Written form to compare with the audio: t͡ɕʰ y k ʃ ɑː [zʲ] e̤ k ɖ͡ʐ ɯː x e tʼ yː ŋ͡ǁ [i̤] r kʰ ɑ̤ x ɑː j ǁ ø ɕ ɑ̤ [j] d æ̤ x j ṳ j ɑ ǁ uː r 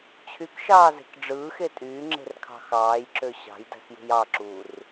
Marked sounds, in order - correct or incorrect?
incorrect, incorrect, correct

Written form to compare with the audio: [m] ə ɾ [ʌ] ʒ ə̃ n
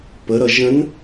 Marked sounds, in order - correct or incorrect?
incorrect, correct

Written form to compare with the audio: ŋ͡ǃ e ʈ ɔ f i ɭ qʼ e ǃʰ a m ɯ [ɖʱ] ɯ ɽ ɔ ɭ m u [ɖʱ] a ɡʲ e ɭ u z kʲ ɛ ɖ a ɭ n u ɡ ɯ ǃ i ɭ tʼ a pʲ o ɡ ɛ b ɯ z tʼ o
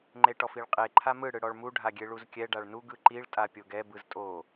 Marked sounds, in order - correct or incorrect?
incorrect, correct

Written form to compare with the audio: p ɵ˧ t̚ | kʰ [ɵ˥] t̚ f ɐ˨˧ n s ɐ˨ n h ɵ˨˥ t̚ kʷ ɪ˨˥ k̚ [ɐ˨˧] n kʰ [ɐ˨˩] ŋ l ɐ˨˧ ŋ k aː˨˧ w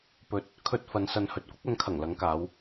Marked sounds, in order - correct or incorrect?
incorrect, correct, correct

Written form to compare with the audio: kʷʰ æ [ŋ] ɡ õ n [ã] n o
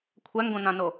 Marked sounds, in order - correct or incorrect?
correct, correct

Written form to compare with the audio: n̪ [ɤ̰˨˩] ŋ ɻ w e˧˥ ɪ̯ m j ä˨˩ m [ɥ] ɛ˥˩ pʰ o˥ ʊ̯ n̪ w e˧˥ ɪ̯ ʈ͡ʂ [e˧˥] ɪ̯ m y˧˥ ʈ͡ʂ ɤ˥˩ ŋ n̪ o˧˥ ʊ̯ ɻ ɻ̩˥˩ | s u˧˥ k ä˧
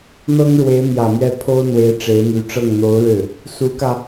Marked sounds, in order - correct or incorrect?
incorrect, correct, correct

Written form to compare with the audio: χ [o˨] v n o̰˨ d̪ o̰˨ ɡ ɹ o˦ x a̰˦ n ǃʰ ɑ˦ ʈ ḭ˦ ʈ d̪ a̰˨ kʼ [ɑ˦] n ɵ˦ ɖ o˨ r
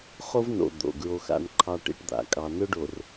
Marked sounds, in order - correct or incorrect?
incorrect, correct

